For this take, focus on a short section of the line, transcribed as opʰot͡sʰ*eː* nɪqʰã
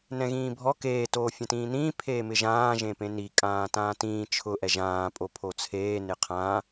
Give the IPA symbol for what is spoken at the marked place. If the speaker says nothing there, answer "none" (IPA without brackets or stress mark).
eː